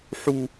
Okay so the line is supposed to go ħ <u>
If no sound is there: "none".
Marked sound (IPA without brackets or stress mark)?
u